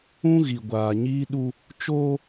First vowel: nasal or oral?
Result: nasal